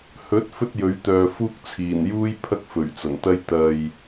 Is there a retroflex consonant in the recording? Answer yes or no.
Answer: no